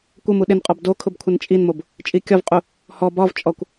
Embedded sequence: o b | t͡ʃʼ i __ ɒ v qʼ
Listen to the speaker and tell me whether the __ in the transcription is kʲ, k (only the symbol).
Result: kʲ